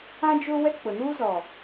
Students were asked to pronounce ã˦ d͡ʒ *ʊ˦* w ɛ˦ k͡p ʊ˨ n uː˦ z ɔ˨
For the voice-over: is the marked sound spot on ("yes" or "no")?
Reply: yes